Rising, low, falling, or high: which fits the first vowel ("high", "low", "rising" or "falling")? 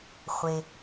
low